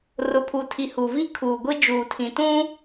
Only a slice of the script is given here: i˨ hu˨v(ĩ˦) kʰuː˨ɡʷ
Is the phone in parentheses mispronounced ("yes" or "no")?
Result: yes